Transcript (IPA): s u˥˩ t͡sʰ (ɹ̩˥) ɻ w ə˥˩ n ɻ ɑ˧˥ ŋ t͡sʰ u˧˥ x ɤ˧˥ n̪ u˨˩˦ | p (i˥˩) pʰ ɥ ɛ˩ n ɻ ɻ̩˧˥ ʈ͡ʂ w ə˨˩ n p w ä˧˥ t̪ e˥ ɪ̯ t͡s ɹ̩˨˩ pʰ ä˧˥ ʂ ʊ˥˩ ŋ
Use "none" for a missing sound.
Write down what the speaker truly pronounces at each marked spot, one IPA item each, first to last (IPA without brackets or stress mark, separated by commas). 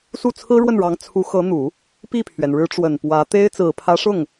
ɹ̩˥, i˥˩